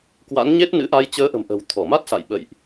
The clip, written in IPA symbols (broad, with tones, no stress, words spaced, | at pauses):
kwa̰˧˥n ɲe˦˥t̚nɨ̰˧˥ ʔa˧jt͡ɕəː˨˦ʔə̤˨˩m ʔə̤˨˩wt̪ʰɔ˧˩ma˦˥t̚sa̰˧˨j ɓə̰˧˨jʔ